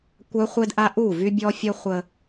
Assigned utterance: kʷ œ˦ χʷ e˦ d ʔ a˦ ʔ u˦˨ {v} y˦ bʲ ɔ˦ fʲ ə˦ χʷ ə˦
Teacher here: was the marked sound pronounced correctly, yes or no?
yes